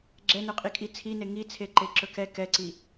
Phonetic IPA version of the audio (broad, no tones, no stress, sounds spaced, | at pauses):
ɡ͡ǁ ɛ n ɵ qʼ i kʼ i t͡sʰ i n e ŋ i t͡sʰ e ǃ e ǁ ɵ k ɛ k ɛ ǀ i